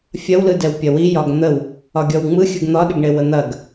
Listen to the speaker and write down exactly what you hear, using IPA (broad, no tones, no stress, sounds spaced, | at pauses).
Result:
fʲ ɐ w l ɯ d ɛ w pʲ ɐ w i j ɒ ɡ n̪ ə w | ɒ ɡʲ ɔ w ŋ͡m ɯ xʲ ɯ ɡ n̪ ɒ ɗ ə ɡ ɳ e w ə n̪ ɐ ɡ